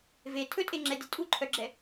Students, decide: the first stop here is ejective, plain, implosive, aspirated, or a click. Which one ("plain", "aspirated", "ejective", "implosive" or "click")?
aspirated